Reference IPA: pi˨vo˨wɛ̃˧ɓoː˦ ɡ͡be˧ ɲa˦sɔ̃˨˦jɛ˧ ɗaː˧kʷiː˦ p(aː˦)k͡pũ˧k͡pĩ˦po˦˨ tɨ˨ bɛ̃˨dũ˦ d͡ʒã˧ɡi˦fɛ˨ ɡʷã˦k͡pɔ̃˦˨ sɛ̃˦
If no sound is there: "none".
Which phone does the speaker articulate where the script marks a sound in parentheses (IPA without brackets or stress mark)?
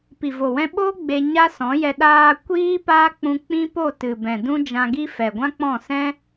aː˦